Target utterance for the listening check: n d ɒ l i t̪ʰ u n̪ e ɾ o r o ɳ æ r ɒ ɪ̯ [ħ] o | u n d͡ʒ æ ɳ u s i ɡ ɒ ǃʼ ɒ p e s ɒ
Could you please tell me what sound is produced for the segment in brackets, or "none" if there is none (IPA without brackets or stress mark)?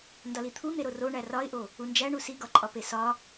ʔ